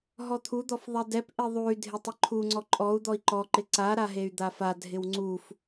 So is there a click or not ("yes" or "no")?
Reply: yes